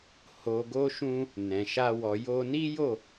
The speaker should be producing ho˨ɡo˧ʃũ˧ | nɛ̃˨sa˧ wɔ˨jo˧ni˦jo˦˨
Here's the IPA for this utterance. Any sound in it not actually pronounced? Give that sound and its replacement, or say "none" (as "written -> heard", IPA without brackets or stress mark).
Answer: s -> ʃ